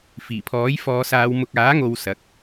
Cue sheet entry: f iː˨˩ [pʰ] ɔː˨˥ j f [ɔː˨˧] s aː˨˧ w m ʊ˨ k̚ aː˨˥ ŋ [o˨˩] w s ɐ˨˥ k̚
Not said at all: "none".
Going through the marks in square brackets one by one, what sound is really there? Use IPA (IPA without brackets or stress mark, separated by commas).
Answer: pʰ, ɔː˨˧, o˨